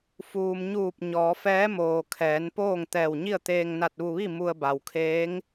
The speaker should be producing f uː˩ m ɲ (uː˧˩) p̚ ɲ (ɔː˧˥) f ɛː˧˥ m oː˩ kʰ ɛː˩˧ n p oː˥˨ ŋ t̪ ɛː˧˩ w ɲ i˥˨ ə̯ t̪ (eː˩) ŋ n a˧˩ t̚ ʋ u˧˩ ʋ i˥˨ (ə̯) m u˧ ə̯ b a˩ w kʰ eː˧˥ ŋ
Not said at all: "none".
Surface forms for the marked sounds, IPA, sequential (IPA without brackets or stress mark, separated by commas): uː˧˩, ɔː˩˧, eː˧, none